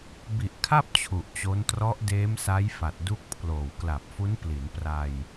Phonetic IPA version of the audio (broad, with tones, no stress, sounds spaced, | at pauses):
b i˨˩ ʔ kʰ a˥˩ p̚ t͡ɕʰ u˨˩ ʔ t͡ɕ o˦˥ n t r ɔ˦˥ ʔ d eː˦˥ m s a˦˥ j f a˨˩ t̚ d u˥˩ k̚ pʰ l oː˨˩ w k l a˨˩ p̚ f u˦˥ n p l i˩˦ n p r a˧ j